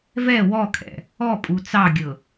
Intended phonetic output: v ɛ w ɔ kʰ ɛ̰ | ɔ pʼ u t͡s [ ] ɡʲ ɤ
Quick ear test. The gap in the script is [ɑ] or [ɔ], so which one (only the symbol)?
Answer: ɑ